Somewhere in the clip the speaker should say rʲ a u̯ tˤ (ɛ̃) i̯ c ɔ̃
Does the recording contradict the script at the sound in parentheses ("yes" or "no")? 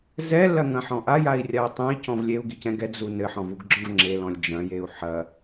no